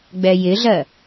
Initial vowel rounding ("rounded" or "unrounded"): unrounded